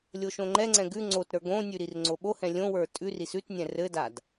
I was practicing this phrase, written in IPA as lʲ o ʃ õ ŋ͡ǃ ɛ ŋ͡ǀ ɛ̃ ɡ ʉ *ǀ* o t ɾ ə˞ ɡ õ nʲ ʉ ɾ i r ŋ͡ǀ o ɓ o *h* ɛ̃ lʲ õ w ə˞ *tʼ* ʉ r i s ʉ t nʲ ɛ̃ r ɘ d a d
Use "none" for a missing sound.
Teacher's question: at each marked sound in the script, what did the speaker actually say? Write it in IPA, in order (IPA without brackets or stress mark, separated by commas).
ŋ͡ǀ, h, tʼ